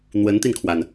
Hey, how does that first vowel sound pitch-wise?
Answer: rising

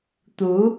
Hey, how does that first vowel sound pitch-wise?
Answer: rising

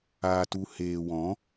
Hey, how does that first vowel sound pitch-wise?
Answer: low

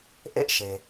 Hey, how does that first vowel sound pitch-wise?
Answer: high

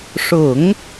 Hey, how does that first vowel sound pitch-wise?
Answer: low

